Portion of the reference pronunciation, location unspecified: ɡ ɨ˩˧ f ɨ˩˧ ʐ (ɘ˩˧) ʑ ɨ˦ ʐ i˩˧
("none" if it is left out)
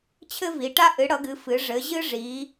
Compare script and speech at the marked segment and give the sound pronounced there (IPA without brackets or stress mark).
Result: ɘ˩˧